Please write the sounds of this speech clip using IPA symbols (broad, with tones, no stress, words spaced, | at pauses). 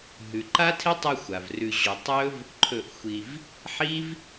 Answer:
ɦʉ˨ǃa˦tʰe˦tˤɨ˧ xʷa˨vrʉ˧ʑo˧ tˤɵ˦v | ǃʰɵ˦˨ʔxʷi˧v | ħi˦v